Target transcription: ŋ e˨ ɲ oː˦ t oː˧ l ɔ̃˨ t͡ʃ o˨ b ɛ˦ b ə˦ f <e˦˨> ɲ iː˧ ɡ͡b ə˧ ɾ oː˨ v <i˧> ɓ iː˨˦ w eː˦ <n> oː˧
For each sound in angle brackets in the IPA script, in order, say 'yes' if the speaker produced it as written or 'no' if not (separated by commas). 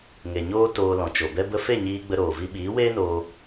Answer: yes, yes, yes